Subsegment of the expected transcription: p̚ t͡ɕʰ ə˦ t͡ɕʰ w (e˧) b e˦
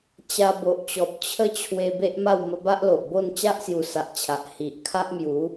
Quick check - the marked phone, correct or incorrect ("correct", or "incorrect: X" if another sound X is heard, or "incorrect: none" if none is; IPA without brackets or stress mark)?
correct